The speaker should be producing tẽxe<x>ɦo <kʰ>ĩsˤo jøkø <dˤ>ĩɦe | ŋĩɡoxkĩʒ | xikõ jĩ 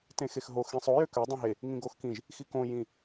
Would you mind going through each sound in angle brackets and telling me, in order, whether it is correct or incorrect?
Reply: correct, incorrect: x, correct

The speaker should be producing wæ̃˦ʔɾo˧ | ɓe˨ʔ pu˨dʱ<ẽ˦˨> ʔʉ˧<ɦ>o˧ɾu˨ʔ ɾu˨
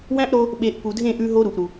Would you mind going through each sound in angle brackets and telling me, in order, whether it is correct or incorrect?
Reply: correct, correct

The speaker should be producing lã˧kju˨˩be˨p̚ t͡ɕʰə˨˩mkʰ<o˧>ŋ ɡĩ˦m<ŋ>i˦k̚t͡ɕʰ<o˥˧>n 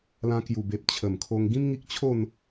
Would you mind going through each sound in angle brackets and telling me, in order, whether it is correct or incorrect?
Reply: correct, correct, correct

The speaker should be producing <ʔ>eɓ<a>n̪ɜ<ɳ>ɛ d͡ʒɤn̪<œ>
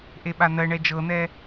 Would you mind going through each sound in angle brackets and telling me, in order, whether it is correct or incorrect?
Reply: correct, correct, correct, incorrect: ɛ

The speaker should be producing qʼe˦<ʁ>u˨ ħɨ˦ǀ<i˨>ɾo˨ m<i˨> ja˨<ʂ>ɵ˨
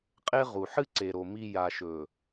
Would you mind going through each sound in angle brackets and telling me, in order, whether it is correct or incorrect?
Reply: correct, incorrect: e˨, correct, incorrect: ʃ

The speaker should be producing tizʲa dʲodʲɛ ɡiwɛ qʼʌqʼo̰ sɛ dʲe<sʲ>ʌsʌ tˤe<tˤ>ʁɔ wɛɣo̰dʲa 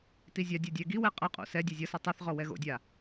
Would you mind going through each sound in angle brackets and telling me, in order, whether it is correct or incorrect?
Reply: incorrect: zʲ, incorrect: θ

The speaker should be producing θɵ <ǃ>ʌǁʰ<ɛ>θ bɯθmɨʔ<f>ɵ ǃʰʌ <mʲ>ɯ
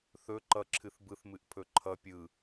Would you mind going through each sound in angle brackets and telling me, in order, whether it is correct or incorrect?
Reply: correct, incorrect: ɨ, incorrect: pʰ, incorrect: pʲ

